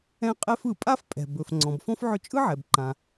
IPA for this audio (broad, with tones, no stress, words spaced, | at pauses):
ɛ̃˦qʼɛ˦f ɯ˩pʼa˦f pʼɛ̤˩ bɵ˩f ŋ͡ǀɔ̃˩bfɔ̃˥fʕɵ˦ t͡ʃʼɯ˥ʕɛ˩bǃã˩